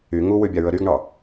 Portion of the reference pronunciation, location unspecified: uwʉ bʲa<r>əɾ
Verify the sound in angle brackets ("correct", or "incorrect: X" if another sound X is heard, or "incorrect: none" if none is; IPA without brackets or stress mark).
incorrect: ɹ